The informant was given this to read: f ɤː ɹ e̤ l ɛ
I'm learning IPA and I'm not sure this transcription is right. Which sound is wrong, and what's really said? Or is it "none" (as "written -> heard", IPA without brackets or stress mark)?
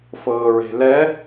none